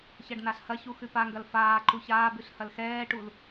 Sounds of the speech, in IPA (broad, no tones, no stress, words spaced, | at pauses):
çɐɖnaɬhɐçu xʉpaŋɡɐl faː ǃuçaːbʉɬ hɐlxɛːʈul